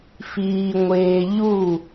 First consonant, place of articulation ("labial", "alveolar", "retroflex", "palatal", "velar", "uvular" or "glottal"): labial